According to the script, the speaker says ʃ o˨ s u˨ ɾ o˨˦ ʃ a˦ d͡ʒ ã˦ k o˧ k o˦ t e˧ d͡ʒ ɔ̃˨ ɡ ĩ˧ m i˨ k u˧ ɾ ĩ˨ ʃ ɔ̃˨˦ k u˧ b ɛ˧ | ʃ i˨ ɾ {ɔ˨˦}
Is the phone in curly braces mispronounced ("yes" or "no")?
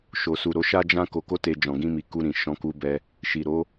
yes